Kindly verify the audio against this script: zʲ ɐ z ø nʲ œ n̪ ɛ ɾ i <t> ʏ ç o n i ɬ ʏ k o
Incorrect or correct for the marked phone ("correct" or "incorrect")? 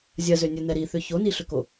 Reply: incorrect